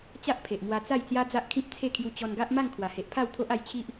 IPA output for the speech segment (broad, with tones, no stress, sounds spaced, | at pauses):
t͡ɕ a˦ ʔ pʰ e˨ ʔ m w a˧ t͡s a˥˧ j t͡s j a˦ d͡z a˦ ʔ kʰ ĩ˦ p̚ t͡sʰ e˥˧ kʰ j u˧ t͡ɕ ɔ˧ n ɡ a˦ ʔ m a˥˧ ŋ kʰ w a˨˩ h e˨ ʔ pʰ a˥˧ w t̪ʰ o˦ ʔ a˧ j t͡ɕʰ i˦ ʔ